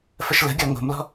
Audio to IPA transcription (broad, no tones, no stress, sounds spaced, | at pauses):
f ə ʃ l ə̤ ɡʲ ɔ ŋ o̤ m l ɔ̤